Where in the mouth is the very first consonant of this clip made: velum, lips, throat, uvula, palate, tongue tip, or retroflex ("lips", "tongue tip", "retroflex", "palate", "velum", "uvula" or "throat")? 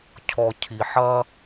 palate